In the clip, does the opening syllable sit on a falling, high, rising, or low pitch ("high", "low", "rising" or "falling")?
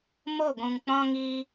falling